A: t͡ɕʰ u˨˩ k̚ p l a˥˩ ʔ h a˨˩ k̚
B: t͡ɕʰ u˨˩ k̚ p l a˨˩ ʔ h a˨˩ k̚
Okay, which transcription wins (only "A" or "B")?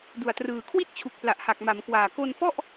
B